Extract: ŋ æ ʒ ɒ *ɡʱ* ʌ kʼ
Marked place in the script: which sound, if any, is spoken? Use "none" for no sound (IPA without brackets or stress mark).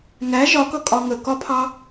k